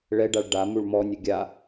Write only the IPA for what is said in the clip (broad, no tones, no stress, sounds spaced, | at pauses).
ɭ ɛ ɖ a ɭ ɖ a m u ɭ m ɔ nʲ ə ɡʲ a